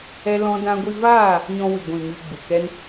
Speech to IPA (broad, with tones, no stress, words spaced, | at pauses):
ɛ˦lɔ̃˦dã˦ ɡʷi˧vaː˦˨ | ɲɔ̃˧wɨ˨ɡʷĩ˨ mi˧ɡ͡bu˨kɛ˦n